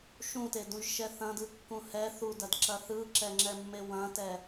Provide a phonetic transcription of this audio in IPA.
ʃũtedũʒʃɛ θɐ̃dɯkːũ hɛ θudɐdǁɐ θɯǁɛŋ͡ǁɛmːe wɐ̃tɛ

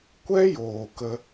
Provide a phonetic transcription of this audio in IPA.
kʷɛ˦joː˨ kə˧

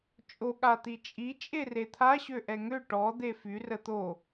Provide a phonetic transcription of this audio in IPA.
t͡ʃʼo ɠat̪it͡ʃʼi t͡ʃʼeret̪ʰa ɕøʔɛŋø ʈɔ d̪efy rət̪o

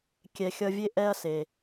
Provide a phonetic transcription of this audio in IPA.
kʲɛ˨ xʲʌ˧vʲe˦ʔɛ˦ɐ̯se˨

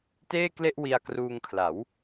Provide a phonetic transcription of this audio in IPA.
teː˥˩kle˥˩ʔwi˧a̯ kruː˧ŋkʰla˩˦w

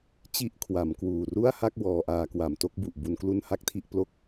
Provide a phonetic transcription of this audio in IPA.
t͡ɕi˥˩ʔ kʰwa˩˦mkwuː˨˩ ru˥˩a̯ha˥˩k̚ wɔː˧ʔaː˧ kwa˨˩mto˦˥k̚bu˨˩ʔ bu˧nklu˥˩n ha˥˩k̚tʰi˥˩ʔplo˥˩k̚

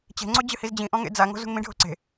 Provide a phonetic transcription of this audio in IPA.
t͡ɕe̤ŋ͡ǀo d͡ʑɨhizd͡ʑĩʔɔ̃ ŋḛd͡zaŋo̤ zṳŋmĩɖʱo̤ ǀe̤

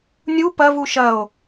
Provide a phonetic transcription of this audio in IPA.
nʲu pɐvu ʃɐo̯

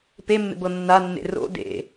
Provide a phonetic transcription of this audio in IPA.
pemːḛbɤ nːanːḛ ro̰ dḛ

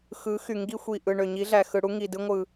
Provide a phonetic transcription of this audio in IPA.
xɯ˨˦xy˨ ŋɡi˧xʷi˨ ʔɯ˨ɳø˨ɲi˨˦ ɮæ˨xɯ˨ɽu˦ŋi˨ dɯ˧ŋʷɯ˨

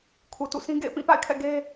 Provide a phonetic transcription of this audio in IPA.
kʰu˨tṵ˦˨sĩ˦ ɡḛ˦˨ɪ̯pĩ˦˨pa̰˦˨ɪ̯kʰɛ̰˦˨ ɡe˦

